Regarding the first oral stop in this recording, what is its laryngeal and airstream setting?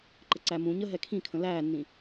click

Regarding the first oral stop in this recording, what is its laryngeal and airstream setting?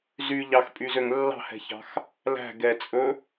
ejective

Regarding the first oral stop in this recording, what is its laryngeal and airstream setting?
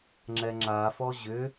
click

